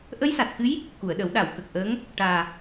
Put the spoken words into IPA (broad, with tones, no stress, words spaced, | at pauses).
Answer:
ʔə˧˥jsa˨˩t̚xɨ˧˥j | ku˨˩˨ə̯ɗə˨˩˦w ɗa˨˩˨wkə˨˩k̚ʔəː˧˥ŋ | ʈaː˨˩